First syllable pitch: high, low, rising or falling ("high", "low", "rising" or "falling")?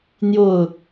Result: falling